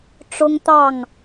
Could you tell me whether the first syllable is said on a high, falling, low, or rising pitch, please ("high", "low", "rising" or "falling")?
high